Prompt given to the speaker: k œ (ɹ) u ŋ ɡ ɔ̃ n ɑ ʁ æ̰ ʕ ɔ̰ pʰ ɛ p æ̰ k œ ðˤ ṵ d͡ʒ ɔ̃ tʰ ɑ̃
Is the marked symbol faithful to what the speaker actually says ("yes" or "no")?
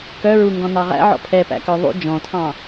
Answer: yes